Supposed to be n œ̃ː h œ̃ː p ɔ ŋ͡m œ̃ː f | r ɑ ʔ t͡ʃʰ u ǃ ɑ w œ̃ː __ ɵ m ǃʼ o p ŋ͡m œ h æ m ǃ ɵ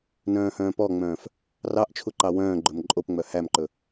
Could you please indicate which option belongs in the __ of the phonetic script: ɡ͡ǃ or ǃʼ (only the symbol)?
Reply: ɡ͡ǃ